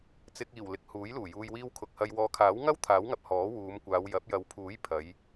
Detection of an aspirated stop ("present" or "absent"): present